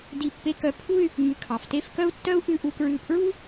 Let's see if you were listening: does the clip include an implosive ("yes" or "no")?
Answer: no